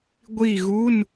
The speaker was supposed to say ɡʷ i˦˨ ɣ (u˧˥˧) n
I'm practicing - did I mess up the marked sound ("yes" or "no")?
no